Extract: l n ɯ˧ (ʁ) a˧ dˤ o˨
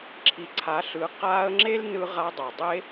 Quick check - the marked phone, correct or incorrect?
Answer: correct